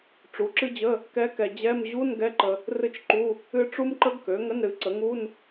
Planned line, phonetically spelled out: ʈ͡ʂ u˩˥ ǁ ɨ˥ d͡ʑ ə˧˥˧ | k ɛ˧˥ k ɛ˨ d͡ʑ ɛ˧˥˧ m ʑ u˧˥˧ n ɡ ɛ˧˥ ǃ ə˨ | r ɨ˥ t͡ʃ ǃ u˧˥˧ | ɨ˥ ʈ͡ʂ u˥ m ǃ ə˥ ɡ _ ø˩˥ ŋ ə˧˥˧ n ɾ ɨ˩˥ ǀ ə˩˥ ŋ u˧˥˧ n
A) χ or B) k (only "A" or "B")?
B